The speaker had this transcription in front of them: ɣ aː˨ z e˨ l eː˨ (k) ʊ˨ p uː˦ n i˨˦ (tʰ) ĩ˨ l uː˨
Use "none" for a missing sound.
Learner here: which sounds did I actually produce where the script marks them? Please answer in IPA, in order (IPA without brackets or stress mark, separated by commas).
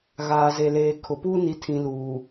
kʰ, tʰ